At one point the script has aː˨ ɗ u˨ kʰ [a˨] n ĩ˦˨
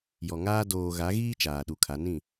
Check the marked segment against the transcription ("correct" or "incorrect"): incorrect